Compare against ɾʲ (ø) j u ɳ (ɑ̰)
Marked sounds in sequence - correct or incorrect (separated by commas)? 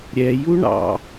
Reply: incorrect, correct